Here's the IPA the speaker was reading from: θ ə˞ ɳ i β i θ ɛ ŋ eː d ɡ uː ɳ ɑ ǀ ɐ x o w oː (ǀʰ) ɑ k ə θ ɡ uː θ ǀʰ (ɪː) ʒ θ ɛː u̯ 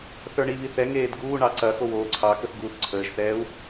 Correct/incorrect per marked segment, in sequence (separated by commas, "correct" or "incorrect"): correct, incorrect